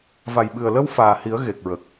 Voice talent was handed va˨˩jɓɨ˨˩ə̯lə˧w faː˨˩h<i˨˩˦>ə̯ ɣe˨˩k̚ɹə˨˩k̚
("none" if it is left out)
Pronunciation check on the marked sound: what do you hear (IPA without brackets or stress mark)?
i˨˩˦